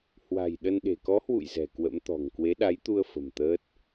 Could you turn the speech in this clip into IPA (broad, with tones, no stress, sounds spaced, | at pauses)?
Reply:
h w a̤˨˩ j ɗ ə˧ n ɗ e̤˨˩ k ɔ˨˦ h w ṵ˧˨ j z ɛ̤˨˩ k w ə̰˧˥ m t̪ ɔ̤˨˩ ŋ k w e˨˦ ɗ a˨˦ j t̪ u˧ ə̯ f ə̤˨˩ m t̪ əː˦˥ t̚